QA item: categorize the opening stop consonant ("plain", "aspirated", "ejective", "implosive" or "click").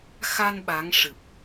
implosive